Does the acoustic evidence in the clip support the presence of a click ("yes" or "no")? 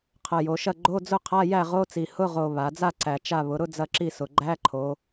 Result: yes